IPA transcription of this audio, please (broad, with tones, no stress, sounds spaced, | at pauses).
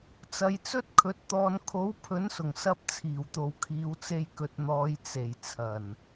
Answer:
t͡s ɐ˨˧ j t͡s ɵ˥ t̚ kʰ ɵ˨˥ t̚ t̪ ɔː˧ n kʰ o˨˥ w pʰ ɵ˨˥ n s ʊ˨˩ ŋ s ɐ˧ p̚ t͡sʰ iː˨˩ w t̪ o˨ w kʰ iː˨˧ w t͡s e˧ j k ɵ˨ t̚ n̪ ɔː˨˧ j t͡s e˨˩ j t͡sʰ ɐ˨˩ n